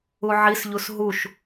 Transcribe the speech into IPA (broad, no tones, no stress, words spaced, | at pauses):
uʕisʎus ɦuʃ